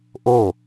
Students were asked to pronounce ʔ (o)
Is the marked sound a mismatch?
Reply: no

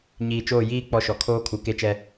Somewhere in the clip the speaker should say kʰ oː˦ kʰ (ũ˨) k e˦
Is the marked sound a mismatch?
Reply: yes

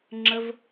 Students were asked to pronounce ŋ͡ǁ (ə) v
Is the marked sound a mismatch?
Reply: no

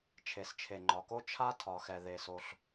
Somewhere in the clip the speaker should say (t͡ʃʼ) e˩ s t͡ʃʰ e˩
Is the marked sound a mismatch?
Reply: yes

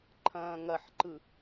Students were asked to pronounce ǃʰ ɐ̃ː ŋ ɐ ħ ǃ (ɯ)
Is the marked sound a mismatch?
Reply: no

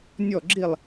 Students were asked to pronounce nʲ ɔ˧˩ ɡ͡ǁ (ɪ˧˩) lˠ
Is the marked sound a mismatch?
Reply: yes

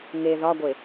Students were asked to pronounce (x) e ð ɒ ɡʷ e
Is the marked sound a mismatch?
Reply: yes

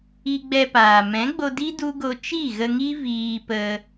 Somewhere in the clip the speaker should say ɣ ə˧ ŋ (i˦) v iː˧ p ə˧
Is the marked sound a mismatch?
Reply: no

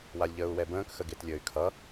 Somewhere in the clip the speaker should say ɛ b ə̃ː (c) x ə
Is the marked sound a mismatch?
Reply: yes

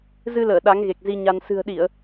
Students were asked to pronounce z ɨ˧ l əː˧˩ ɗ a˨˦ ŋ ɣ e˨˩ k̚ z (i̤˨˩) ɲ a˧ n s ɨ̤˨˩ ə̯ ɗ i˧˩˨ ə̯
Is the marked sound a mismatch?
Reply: yes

